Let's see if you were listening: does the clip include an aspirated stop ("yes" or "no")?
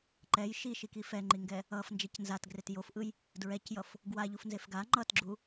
no